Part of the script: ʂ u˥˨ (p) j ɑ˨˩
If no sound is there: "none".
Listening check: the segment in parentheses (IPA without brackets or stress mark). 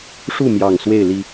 m